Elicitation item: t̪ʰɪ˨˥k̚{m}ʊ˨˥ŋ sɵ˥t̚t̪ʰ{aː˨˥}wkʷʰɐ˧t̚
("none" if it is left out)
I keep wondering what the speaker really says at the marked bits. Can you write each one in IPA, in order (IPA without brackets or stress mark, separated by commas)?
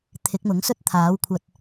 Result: m, aː˨˥